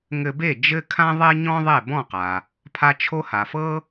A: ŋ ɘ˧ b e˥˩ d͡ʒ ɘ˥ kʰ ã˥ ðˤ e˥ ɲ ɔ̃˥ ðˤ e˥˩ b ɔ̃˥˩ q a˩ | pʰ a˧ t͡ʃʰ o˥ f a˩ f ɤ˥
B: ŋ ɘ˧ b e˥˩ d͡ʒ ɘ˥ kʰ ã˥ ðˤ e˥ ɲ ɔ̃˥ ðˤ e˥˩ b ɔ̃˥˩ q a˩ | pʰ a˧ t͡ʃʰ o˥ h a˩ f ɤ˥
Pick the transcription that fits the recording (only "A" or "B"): B